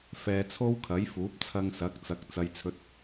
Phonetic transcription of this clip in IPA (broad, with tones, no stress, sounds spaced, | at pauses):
f ɛː˧ t͡sʰ o˥ w kʰ ɐ˨˥ j f uː˨˥ p̚ t͡sʰ ɐ˧ ŋ s ɐ˨˥ k̚ t͡s ɐ˨˥ k̚ t͡s ɐ˥ j t͡sʰ ɵ˥ t̚